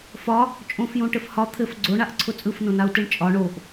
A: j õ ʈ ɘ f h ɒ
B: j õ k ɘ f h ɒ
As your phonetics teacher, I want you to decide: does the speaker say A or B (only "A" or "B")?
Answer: A